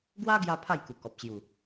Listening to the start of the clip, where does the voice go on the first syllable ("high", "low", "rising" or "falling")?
high